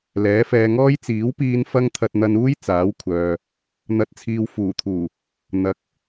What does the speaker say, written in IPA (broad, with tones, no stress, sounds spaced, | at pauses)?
l ɛː˨˥ f ɛː˧ ŋ ɔː˥ j t͡s iː˨˥ w p iː˧ n f ɐ˥ ŋ t̪ʰ ɐ˧ t̚ n̪ ɐ˧ n uː˥ j t͡s aː˨˥ w kʷʰ œː˨ | n̪ ɐ˨˥ t̚ t͡sʰ iː˨ w f uː˨˩ t̪ʰ uː˨˩ | n̪ ɐ˨˥ k̚